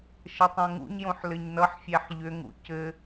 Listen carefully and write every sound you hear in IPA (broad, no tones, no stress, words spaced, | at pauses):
ʃɘtˤõŋṵɲjõħ lɘɲnʌħfʲæħ ʎʏŋṵ cɘ